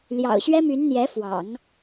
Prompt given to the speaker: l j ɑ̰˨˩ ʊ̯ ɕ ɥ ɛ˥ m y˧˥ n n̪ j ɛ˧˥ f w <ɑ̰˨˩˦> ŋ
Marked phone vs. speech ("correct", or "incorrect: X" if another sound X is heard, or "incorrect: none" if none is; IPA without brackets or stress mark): correct